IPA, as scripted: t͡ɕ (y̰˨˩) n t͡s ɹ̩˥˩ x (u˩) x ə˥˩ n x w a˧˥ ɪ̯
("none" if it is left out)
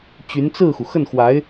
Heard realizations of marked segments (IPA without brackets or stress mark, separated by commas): y˧˥, u˩